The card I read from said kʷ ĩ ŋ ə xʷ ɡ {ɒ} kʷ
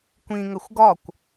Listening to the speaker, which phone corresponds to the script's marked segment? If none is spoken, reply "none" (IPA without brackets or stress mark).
ɒ